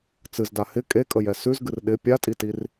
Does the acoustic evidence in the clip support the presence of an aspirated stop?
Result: no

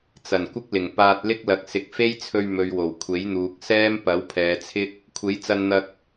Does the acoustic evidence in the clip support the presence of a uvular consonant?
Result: no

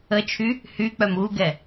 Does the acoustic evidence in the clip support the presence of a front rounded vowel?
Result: yes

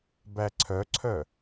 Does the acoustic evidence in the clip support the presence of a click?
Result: yes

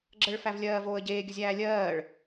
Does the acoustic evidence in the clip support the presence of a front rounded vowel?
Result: no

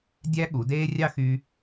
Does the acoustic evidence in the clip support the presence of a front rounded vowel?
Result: yes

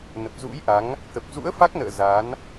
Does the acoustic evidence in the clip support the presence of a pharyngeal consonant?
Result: no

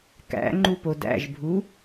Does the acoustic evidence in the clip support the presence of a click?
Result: yes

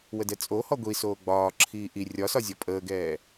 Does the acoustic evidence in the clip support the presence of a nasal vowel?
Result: no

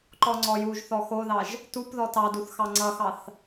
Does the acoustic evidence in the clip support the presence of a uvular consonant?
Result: no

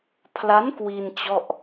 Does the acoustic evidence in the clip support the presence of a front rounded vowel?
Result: no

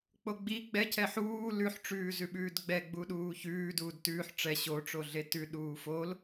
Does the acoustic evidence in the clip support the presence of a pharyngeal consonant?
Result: yes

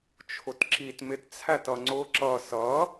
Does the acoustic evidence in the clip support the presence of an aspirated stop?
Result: yes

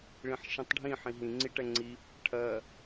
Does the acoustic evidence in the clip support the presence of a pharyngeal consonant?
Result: yes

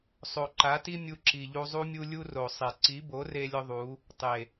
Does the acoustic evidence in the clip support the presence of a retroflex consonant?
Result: no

